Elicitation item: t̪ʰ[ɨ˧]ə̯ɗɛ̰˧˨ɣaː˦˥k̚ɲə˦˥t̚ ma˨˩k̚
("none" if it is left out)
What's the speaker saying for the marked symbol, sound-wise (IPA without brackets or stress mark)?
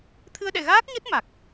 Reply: ɨ˧